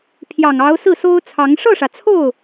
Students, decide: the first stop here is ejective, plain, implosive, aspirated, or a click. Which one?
aspirated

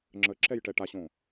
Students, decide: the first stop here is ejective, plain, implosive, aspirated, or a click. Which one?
click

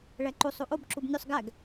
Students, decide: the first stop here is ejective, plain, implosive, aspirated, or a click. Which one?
click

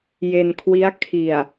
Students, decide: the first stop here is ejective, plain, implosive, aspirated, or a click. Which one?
aspirated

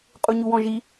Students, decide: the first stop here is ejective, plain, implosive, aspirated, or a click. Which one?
ejective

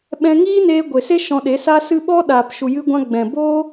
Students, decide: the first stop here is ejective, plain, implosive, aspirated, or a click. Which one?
implosive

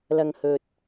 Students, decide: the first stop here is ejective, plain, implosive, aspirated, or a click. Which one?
plain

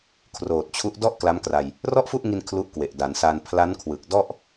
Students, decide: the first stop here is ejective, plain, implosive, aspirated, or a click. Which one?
aspirated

